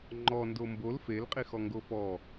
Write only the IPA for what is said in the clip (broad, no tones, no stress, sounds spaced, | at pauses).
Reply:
ŋ͡ǃ ɔ n d o m b o l f e l qʼ i x ɔ ŋ ɡ o f ɔ